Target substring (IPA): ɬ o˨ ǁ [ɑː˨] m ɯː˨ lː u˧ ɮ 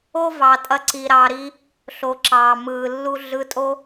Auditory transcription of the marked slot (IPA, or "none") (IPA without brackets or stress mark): ɑː˨